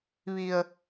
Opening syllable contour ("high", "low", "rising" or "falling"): low